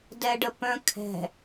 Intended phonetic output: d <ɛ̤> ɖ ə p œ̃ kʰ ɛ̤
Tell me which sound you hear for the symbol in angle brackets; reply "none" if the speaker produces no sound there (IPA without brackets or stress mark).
ɛ